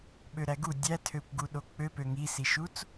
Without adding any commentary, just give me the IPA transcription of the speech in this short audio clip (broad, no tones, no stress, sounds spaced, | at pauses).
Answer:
ɓ ø ɾ æ ɡ u dʲ æ tʰ ø kʷ ɡ u ɗ o k͡p ø p ø ŋ i s i ʃ u t͡s